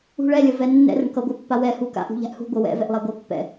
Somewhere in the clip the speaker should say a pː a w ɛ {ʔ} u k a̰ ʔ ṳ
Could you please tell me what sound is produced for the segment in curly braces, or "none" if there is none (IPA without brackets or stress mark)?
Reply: h